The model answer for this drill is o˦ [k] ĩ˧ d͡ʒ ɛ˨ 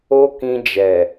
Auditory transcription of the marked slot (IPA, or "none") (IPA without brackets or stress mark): k